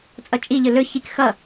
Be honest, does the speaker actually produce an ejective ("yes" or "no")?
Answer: yes